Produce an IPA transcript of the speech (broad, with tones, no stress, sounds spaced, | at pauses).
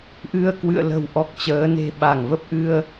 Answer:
ʔ ɨ˧ ə̯ k w ɨ̰˧˨ ə̯ l ə̤˨˩ w ʔ ɔ˨˩ k̚ t͡ɕ əː˨˦ n e̤˨˩ ɓ a˧˩ ŋ v ə˦˥ p̚ ʔ ɨ˧ ə̯